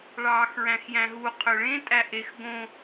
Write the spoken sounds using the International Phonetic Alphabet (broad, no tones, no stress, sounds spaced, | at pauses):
ɭ ɑː x ɹ æ̃ x j æ̃ ɦ u qʰ ø ɭ ẽ tʼ æ ʔ e x ɡ õ